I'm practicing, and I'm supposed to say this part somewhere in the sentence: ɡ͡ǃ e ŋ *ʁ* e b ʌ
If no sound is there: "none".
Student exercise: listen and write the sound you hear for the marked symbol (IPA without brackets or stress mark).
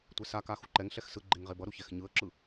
ʁ